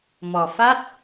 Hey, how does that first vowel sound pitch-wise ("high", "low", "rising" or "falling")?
low